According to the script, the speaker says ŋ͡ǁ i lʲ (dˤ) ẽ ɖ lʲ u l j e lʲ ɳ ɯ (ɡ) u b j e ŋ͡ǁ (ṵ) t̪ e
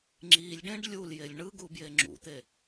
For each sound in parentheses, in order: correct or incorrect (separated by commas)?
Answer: incorrect, correct, correct